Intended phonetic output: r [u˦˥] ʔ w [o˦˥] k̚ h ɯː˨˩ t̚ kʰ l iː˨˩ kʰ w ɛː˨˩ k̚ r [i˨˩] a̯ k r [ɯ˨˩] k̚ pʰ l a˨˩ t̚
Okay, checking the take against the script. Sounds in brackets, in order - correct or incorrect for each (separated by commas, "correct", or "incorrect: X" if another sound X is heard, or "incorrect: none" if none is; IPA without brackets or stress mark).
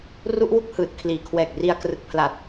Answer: correct, incorrect: u˦˥, incorrect: i˧, correct